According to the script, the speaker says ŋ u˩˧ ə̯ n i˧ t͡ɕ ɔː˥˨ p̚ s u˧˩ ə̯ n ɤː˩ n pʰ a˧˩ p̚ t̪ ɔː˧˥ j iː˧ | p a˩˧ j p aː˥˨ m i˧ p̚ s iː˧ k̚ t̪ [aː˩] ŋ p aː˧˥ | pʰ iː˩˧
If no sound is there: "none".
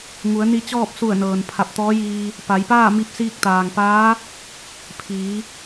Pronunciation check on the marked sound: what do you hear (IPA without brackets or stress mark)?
aː˩